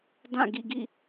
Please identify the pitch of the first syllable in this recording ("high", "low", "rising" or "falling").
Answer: falling